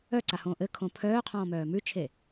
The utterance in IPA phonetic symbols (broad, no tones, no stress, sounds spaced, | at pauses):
œ ǀ a h õː ʔ ɘ kʰ õ pʰ œː qʰ ɔ̃ː m œː m ʉ t͡ʃʰ e